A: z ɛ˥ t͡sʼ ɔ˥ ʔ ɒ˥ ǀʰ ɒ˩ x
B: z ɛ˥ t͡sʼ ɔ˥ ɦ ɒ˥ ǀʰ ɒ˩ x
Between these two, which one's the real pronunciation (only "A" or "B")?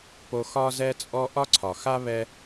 A